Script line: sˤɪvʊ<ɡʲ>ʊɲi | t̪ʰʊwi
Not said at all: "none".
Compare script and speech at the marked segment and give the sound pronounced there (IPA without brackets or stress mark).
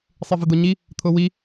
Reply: d̪